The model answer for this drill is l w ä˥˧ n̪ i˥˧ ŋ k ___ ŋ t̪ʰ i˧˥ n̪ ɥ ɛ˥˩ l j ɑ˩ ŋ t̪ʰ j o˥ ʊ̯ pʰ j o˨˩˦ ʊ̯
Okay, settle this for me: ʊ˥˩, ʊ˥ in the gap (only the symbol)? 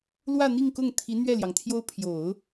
ʊ˥˩